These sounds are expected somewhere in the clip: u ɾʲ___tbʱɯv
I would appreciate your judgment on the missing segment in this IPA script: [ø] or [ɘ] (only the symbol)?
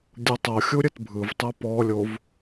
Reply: ɘ